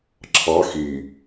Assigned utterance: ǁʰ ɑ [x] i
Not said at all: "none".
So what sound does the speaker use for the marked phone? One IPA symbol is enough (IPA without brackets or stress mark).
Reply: x